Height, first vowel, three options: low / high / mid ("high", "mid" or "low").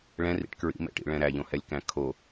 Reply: mid